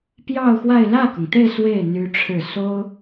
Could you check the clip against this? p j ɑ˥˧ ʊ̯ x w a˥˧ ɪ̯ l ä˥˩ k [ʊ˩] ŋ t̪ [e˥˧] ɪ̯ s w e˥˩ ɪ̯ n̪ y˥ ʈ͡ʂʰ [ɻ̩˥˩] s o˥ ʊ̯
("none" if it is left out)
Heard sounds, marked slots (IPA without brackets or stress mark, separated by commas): ʊ˩, e˥˧, ɻ̩˥˩